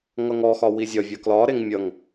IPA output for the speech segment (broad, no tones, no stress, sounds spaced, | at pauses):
ŋ ʌ ŋ ɔ x ɒ w i zʲ ɒ vʲ ʌ k l ɒ ɾ e ŋ mʲ ʌ ŋ